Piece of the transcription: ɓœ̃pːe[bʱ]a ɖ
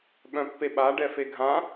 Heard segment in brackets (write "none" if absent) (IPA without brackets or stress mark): ɓ